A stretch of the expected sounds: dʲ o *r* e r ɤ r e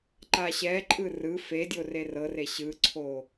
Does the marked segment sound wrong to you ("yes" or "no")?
no